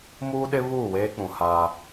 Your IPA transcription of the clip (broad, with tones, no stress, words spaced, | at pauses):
muː˦ɗɪ˦ βuː˦˨weː˦k͡pũ˨haː˦